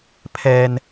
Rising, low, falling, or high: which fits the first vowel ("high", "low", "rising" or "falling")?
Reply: low